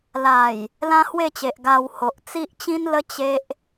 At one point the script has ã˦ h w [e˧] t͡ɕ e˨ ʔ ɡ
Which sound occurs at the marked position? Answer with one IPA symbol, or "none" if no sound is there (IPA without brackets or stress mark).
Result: e˥˧